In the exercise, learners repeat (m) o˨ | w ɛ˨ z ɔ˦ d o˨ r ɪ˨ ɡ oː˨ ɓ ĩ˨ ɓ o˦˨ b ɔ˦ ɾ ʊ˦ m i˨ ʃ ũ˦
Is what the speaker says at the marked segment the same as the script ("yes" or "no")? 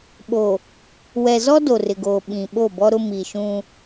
no